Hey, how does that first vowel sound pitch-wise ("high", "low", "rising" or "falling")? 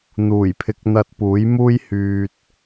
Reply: low